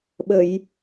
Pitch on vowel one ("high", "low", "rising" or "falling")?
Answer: low